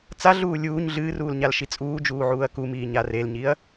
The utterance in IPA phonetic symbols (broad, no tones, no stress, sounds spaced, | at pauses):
t͡s a ɮ uː lʲ uː ɲ ɮ ɨː r uː l ɲ a l ʃ i t͡sʼ uː d͡ʒ uː ʕ uː ɐ̯ k u m iː ɲ a r e l ɲ i ɐ̯